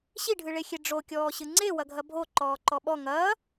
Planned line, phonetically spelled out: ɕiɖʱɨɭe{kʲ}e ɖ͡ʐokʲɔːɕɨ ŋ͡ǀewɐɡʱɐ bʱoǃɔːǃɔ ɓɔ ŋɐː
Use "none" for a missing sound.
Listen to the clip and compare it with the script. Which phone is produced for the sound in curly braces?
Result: xʲ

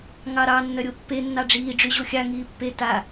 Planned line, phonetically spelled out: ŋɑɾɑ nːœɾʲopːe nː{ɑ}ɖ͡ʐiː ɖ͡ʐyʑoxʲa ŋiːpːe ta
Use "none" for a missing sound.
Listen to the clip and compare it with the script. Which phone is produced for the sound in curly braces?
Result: ɑ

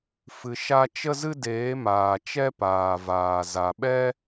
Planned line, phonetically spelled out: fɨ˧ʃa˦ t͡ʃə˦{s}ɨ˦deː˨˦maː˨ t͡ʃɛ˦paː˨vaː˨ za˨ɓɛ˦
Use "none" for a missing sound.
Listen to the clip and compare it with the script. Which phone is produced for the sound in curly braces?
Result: z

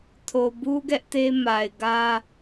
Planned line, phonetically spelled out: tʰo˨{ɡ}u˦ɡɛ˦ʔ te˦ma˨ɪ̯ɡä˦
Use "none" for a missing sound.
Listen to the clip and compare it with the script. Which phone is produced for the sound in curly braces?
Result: b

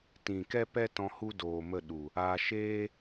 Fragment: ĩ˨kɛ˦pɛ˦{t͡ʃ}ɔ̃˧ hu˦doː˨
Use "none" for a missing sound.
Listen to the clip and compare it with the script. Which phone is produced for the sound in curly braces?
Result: t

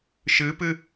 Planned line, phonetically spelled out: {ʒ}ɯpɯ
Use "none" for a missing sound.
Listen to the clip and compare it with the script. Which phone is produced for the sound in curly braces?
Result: ʃ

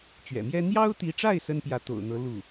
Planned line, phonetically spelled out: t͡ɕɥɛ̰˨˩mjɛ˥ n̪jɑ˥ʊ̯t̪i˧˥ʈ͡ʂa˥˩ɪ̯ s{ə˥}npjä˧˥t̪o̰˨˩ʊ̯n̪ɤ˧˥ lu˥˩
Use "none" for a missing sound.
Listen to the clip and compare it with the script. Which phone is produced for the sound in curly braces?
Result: ə˥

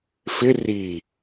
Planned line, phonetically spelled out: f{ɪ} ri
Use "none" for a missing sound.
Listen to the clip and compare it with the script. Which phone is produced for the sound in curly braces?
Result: ɪ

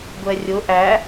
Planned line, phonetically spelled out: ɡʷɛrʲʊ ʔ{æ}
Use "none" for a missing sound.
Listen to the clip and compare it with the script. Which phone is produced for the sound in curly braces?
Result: æ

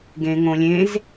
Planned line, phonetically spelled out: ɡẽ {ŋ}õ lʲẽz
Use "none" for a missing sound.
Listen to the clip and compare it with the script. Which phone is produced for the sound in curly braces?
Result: ŋ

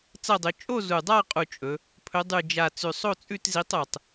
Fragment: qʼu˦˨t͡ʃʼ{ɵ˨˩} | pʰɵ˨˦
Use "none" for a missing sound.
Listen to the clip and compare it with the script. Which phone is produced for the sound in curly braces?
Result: ɵ˨˦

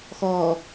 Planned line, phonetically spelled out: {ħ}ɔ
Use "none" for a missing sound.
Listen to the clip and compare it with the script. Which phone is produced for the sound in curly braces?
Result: x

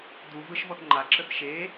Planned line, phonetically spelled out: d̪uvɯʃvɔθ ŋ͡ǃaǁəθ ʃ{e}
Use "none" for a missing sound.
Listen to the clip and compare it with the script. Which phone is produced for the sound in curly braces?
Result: e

